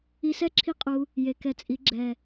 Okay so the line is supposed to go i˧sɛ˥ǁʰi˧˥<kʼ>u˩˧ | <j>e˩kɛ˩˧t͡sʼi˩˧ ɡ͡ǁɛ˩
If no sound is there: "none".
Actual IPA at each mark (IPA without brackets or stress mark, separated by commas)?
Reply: qʼ, j